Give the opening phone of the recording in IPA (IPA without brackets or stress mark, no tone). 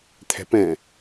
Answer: t̪ʰ